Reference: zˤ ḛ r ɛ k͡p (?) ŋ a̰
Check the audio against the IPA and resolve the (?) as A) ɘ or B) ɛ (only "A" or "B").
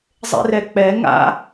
B